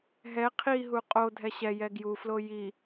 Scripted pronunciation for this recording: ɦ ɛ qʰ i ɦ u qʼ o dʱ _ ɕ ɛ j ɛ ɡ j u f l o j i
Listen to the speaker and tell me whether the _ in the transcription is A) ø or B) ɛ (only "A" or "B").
B